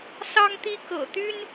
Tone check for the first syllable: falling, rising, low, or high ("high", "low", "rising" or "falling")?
high